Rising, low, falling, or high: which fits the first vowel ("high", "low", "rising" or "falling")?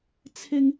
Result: high